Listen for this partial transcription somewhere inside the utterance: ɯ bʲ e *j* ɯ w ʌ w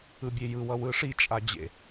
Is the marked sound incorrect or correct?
correct